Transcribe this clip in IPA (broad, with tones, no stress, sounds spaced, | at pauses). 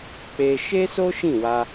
k͡p e˧ ʃ e˦ s o˦ ʃ ĩ˦˨ w a˧